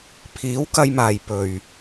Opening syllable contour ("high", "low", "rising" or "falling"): rising